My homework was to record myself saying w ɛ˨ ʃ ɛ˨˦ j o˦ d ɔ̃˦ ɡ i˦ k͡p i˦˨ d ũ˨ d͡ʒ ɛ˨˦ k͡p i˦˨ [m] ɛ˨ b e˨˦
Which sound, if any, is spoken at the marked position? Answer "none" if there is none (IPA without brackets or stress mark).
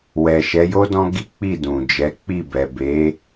b